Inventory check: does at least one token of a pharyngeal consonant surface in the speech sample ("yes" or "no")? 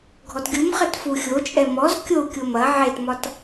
yes